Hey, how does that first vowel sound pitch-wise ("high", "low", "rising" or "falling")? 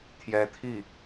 rising